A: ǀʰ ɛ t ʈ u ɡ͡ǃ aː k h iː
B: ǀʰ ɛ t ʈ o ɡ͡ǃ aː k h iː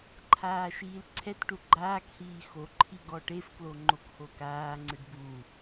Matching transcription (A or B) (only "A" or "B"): A